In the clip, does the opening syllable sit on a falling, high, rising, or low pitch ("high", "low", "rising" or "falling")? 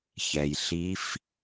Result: low